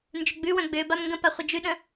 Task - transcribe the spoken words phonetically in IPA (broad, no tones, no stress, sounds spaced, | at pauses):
n d͡ʒ ʏ ɡ͡b ʉ w œ̃ ɡ͡b ʏː b a m ŋ ɡ ə̃ p a χʷ ə d͡ʒ ʉ ɗ ə̃